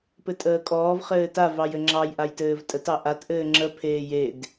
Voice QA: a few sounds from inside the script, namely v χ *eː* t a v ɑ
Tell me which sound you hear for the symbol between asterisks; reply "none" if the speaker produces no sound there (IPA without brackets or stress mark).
ɘː